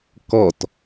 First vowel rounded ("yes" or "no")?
yes